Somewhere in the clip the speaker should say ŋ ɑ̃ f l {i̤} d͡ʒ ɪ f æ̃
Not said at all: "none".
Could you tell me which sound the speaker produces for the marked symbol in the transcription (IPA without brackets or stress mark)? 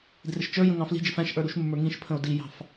i̤